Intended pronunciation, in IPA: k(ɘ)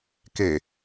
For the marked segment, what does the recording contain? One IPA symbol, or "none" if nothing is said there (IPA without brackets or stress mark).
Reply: e